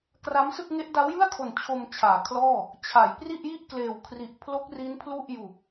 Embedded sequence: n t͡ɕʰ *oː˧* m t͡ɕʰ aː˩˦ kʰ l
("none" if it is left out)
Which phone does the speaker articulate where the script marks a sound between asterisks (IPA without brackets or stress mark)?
o˧